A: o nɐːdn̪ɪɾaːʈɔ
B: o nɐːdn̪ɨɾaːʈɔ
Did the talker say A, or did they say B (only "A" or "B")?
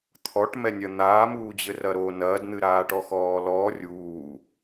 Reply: B